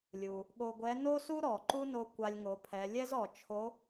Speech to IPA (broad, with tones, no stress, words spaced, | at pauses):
lʲu˩ | ɠo˧ɡʷɛ˧˥ no˥su˥ ɾɔ˩ ǃu˥no˧ kʷa˧lʲŋo˩˧pʰɛ˩˧ lʲɛ˥zɔ˩t͡ʃʰo˧˥